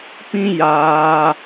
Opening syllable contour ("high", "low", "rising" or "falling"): high